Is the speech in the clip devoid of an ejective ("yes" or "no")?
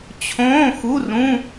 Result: yes